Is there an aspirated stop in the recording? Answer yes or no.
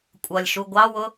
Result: no